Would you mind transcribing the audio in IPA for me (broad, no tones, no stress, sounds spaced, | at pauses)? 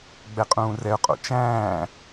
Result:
ɡ͡b ɛ qʼ ũː r ɛ ʊ̯ qʼ o̰ t͡ʃ æ̃ː